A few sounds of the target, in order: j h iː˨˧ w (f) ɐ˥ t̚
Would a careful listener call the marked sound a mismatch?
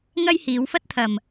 no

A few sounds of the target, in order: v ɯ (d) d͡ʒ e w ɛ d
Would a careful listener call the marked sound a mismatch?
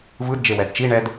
no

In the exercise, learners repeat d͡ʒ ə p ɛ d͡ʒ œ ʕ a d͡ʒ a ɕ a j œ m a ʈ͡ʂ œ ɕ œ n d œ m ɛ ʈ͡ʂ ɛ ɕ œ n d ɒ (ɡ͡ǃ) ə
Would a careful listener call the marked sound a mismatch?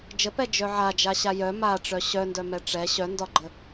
no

